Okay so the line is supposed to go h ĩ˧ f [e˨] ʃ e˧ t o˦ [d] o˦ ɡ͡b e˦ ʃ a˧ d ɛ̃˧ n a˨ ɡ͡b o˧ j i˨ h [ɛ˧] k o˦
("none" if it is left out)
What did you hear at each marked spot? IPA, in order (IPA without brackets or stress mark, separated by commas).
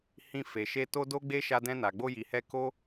e˨, d, ɛ˧